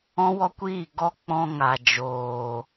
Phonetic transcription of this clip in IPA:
ɔ̃˦ w ɔ˦ kʷ iː˦˨ ɡ ɔ˦ k͡p ɔ̃˧ ŋ a˨ d͡ʒ oː˨

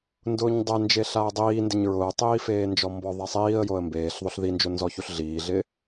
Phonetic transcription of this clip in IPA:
n d ʊː ɲ dˤ ɛ n d͡ʒ e ɬ a ə̯ dˤ iː n d ɪ ɲ ɹ ʊː tˤ iː f eː n d͡ʒ ɔ m b ɔ ðˤ ɛ sˤ iː ə̯ j o ə̯ m b eː ɬ ðˤ o ɬ ð i n d͡ʒ o n z ɔ ç u ɬ ɮ iː ɮ ɪ

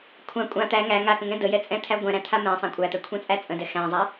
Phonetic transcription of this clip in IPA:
kʷʰ ã kʷʼ ã t̪ æ ŋ æ ŋ a k ə̃ ŋ ɛ̃ d ə j ɛ t͡sʼ ɛ̃ t̪ʰ æ ɡʷ ɛ̃ ɾ æ̃ t̪ʰ a m ɛ̃ sˤ æ̃ kʷʼ æ t̪ ɛ kʷʰ ɛ̃ t͡sʼ æ t͡sʼ ə̃ d ɛ x æ̃ zˤ a

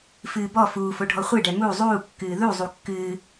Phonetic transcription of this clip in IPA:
f ɨː b ɔ f uː f o ɖʱ ɔ χʷ ɨ ɖ ɛ m u zˤ uː kː ɨː ð u zˤ u kː ɨː

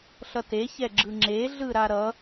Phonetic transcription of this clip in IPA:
ɬ ʌ t e ç ɛ ɡ͡ǁ ɯ ŋ͡ǁ e ɮ ɯ ɾ a ɾ ʌ

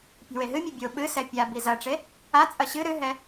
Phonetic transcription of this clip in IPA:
pʲ a̤ w e ɦ ɨ mʲ u bʲ o ɓ ɨ s ɛ pʲ a b i z ɐ ʈ͡ʂ e | a t͡sʼ ɐ ɕ ɨ ɾ ɨ ɦ ɛ

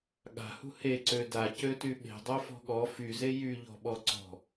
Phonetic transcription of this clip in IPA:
ɠ a̤ h ṳ h e ǀ ø d a c ø t y ɓ e̤ dˤ œ f ɔ̤ ɠ ɔ f y z e j y ʎ ɔ̤ ɓ ɔ ǀ ɔ̤

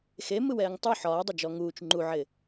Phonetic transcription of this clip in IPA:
x e m ɯ w ɛː ŋ tˤ u ħ ɒː dˤ ɪ d͡ʒ ɔ ŋ uː t͡ʃ ŋ͡ǃ u ʕ ɪ

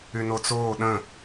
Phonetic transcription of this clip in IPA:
y n o t͡s oː ɗ ə̃

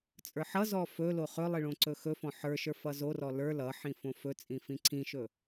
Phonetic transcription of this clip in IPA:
t͡sʼ ə˞ ħ ʌ z ɔ f ɵ l o χ ɵ lˠ i ɭ õ ǀ ɵ x ɵ f ɔ̃ ħ ə˞ ʃ ə˞ f ʌ z o r ɔ l ə˞ l ʌ ħ ĩ f õ f ɵ t͡sʼ ĩ f ĩ ǀʰ ĩ ʃ ɵ

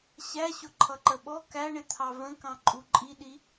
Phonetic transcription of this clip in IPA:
ɕ æ ɕ ʊ ǃʰ ʌ ǃ ə ɓ ɔ k æ ɳ ɪ t̪ʰ ɑ v ə̃ k ɑ̃ ǃʼ u ǃʼ i ɗ i

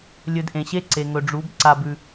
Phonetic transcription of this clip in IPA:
lʲ ɵ˧ d ʔ ẽ˨ ɕ e˦ ǀ e˨ ŋ ɵ˨ ɖ͡ʐ u˨˦ b ǀ a˧ b ʉ˧

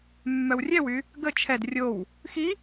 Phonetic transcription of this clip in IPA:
mː œ w rʲ ɛ w y | ɡ ə t͡ʃʰ ɛ d rʲ o w | x i

